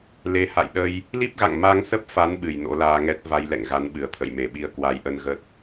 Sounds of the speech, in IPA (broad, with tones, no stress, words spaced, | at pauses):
le˨˦ha̰˧˨jɗə˧j | li˦˥p̚ɣa̰˧˨ŋ ma˧ŋsə˦˥p̚fa˨˦n ɓɨ˧˩jno̰˧˥laː˧ŋɛ˦˥t̚ va˧jlɛ̰˧˨ŋ ɣa˨˦nɓɨ˨˩ə̯t̪ʰə̰˧˨j me˧˩ɓi˧ə̯ kwa˨˦jʔə˧n ɣə˦˥t̚